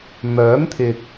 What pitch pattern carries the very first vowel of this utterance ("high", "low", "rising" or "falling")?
rising